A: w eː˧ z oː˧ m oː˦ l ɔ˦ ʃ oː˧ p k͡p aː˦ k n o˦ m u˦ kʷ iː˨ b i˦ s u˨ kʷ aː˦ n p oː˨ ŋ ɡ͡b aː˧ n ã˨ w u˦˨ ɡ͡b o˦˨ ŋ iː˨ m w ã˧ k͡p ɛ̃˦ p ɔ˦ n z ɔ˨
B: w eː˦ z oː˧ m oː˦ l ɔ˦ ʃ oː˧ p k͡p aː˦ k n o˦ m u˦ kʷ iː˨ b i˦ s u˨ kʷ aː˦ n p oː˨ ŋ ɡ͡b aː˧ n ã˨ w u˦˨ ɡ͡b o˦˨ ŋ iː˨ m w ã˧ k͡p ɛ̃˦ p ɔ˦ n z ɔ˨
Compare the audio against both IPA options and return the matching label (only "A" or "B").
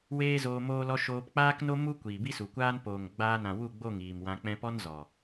B